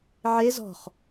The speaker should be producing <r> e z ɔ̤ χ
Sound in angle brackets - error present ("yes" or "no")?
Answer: yes